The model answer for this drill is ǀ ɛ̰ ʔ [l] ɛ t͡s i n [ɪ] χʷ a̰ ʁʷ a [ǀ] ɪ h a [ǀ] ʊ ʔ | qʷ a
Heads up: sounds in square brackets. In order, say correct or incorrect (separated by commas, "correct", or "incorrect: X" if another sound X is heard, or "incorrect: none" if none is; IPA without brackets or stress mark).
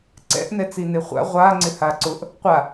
incorrect: n, correct, incorrect: ŋ͡ǀ, correct